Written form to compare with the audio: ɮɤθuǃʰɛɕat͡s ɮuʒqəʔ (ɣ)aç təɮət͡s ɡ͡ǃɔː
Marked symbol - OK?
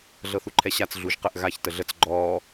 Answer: yes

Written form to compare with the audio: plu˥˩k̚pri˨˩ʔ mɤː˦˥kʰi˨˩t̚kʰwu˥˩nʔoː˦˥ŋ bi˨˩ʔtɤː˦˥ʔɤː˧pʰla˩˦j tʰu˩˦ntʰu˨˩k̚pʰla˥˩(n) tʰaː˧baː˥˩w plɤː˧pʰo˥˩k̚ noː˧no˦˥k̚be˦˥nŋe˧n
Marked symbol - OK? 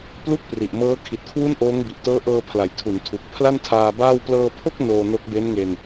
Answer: yes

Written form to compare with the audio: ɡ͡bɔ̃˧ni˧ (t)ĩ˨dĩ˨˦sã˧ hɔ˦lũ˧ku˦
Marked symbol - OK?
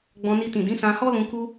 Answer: yes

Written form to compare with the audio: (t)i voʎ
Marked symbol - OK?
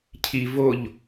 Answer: no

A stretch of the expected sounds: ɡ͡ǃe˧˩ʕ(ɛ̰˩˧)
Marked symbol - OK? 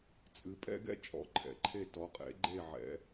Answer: yes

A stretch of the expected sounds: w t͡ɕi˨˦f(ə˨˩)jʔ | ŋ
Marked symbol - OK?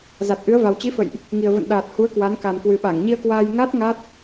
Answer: no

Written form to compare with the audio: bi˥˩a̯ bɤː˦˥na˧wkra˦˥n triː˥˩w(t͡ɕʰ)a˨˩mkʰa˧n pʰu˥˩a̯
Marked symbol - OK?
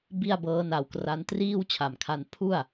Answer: yes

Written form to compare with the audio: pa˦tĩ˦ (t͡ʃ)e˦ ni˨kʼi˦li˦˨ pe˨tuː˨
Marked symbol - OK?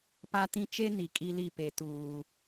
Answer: yes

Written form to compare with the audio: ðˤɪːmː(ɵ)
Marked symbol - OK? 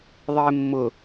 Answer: no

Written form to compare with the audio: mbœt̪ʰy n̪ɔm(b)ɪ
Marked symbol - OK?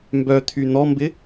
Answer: yes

